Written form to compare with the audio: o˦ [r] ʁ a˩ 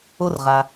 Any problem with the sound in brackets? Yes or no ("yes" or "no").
no